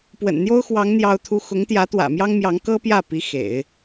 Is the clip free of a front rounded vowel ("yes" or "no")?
yes